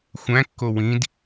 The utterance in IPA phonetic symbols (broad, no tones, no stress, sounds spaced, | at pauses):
xʷ æ̃ kː o w ĩ d